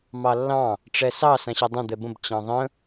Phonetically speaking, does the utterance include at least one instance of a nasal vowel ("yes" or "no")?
yes